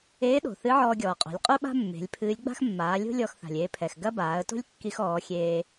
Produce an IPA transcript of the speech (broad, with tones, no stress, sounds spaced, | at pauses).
eː˧˥ ɗ o̤˩ θ ɨ˧˥ ʕ ɔː˧ ɡʲ ɔː˩ qʼ o̤˩˧ lʲ qʼ u˥ ɓ a̤˥ mː e̤˩˧ lʲ pʰ ɨː˧˥ lʲ ɡ͡b a̤˥ x mː aː˩˧ lʲ o̤˥ lʲ ɔ˧ x θ a̤˩ lʲ eː˧ pʰ ɛ˩ x ɡ ɐ˥ b aː˩˧ ə̯ t o̤˥ lʲ kː i˧ x ɔː˩˧ xʲ eː˧